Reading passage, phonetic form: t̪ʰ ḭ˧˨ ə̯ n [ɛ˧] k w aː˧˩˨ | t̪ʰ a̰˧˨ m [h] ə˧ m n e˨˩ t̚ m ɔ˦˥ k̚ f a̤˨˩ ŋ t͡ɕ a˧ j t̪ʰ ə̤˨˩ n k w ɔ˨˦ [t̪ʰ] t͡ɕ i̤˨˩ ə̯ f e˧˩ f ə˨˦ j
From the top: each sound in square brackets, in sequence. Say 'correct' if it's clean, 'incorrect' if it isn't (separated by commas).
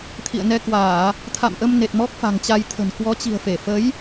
correct, incorrect, incorrect